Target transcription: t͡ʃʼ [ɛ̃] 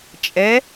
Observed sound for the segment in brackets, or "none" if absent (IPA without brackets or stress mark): ɛ